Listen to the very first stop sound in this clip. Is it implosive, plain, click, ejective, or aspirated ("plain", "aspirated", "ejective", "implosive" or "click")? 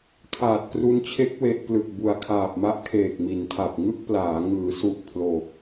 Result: aspirated